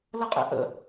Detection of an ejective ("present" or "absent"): present